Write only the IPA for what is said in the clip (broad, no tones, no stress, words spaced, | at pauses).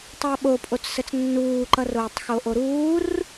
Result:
tˤʌːɓopʼot͡ssət͡s nːuːǃʌroːtˤ xoʔoɾuːr